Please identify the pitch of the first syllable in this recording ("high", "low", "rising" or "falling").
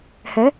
rising